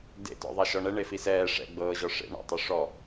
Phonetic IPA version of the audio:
d ḛ t ɔ̰ ðˤ a ʃ ɔ ɳ ɛ ɳ e f i s ɛː ʂ ɛ̰ ɡ͡b ɤː ʑ ɔ ʂ ḛ ɳ ɔ̰ tˤ o ʂ ɔ

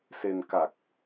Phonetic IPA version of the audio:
s e˧ n k a˨˩ k̚

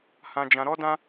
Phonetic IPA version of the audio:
h ã˦ d͡ʒ ã˦ ɾ ɔ˦ d ã˦

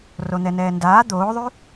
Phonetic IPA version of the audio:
r o n̪ ɛ n ɛː n d aː d̪ oː ðˤ y

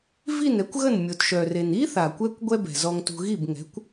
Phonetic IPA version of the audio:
v i˥˩ n ɛ˩˥ kʷ ɣ ə˥˩ n mʲ o˩ t ʃ œ˩ r e˩ n i˥ θ a˩ kʷ ɛ˧ kʷ ɡʷ ɛ˥ b ɛ̤˩ z ɔ˧ ŋ t ṳ˧ ɣ i˥˩ b ŋ ɛ̤˩˥ kʷ

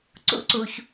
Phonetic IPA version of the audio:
ǀ ṵ˥ ǀ u˩ ç

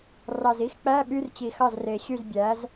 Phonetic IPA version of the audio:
r ɑ˨˩ z i˧˥˧ x k͡p æ˧˥˧ ɓ y˧˥˧ r t͡ɕ i˨˩ x ɑ˥˩ z r e˨˩ ɕ y˥˩ z bʲ æ˩˥ z

